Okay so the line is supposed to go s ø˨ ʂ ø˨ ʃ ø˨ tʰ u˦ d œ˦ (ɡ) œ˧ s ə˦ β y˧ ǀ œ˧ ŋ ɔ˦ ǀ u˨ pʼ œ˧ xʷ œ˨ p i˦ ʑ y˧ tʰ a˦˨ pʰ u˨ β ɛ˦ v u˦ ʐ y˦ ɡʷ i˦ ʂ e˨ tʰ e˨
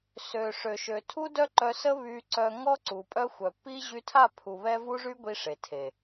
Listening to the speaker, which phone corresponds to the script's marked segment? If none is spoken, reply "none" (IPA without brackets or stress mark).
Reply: ǃ